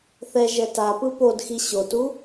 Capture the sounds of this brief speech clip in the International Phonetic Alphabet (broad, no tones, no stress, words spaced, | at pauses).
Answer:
θɛ ʒɛtapɯ pod xiɕotu